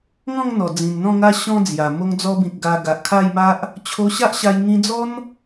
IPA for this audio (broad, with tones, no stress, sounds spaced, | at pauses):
ŋ ɔ̃˥˧ ŋ n̪ ɔ˨˩ d͡z ĩ˨˩ n n̪ ɔ̃˥˧ ŋ a˦ ɕ ɔ̃˦ d͡z j a˨˩ m o˧ ŋ d͡z ɔ˧ b ĩ˨ k̚ ɡ a˧ ɡ a˨ ʔ kʰ a˥˧ j m a˦ ʔ | t͡ɕʰ o˧ ɕ a˦ ʔ ɕ a˧ j ŋ ĩ˧ d͡z ɔ˦ n